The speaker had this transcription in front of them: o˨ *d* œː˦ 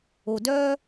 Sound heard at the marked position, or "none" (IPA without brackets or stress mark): d